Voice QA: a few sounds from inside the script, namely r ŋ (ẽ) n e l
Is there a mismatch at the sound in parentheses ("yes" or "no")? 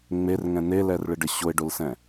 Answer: yes